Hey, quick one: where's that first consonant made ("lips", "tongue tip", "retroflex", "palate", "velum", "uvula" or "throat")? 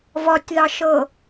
lips